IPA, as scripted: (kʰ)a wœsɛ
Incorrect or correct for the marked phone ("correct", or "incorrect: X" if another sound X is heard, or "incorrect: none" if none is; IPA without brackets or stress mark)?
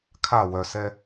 correct